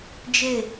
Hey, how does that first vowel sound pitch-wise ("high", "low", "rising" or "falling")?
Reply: falling